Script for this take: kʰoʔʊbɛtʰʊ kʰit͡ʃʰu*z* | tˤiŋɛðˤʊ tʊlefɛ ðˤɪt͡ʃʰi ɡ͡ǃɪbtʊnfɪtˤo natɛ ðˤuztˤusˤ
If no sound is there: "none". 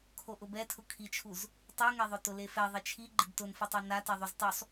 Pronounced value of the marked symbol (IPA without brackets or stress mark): z